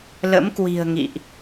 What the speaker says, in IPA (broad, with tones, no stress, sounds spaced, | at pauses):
l ə̰˧˥ m k w i̤˨˩ ə̯ ŋ ḭ˧˨ ʔ